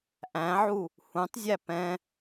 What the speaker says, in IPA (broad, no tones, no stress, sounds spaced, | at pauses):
ʔ æ̃ ʕ u | h ũ tˤ zʲ æ p ɛ̃